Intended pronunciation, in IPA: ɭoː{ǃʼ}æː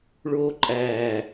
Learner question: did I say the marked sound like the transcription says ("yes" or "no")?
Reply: yes